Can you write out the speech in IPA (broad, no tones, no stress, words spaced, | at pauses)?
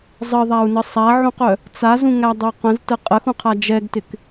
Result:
zˤəðˤau̯nə sˤaʕũqœ | t͡sazũŋædˤœ qə̃ztə qʼəxũqʰa d͡ʒɛɡtɪk